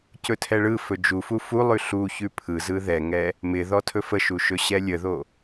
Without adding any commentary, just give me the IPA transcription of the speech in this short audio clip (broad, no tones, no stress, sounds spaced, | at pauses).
c ɵ tʰ ɛ ɭ ɯ f ɵ d͡ʒ u f u f u lˠ ʉ ɬ u ç ʉ pʰ ɯ z ɯ ð ɛ ŋ ɛ | m ɪ ð ɔ tʰ ɵ f ə ʃ u ʃ ɵ ɕ ɛ lʲ ə ð o